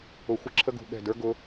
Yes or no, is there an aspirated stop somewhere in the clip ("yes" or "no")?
yes